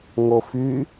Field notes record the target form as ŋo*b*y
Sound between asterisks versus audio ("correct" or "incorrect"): incorrect